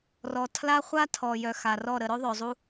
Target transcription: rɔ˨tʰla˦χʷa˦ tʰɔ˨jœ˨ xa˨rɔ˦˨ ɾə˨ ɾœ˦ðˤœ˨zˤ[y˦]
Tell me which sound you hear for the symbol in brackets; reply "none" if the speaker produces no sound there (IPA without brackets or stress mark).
u˦